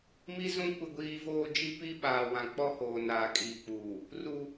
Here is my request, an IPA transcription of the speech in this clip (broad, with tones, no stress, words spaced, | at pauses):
mi˦zũ˦ kʷɪ˦ɡʷiː˦voː˦ d͡ʒi˦ pi˦ɓaː˨wã˨ k͡pɔ˦hoː˨ naː˨kʼiː˨k͡puː˨ | ru˦